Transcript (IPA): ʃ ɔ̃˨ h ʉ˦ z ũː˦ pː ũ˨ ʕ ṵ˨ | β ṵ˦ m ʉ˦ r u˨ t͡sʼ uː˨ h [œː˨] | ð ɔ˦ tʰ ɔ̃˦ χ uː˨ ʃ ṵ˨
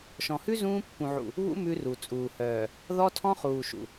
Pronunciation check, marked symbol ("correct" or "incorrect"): correct